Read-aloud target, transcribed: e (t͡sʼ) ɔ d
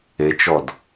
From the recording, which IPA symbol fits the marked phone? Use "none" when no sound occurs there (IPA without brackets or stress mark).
t͡ʃ